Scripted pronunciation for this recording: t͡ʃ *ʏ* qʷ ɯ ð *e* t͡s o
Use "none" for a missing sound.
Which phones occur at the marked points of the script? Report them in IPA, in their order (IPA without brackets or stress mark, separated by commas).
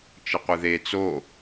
ə, e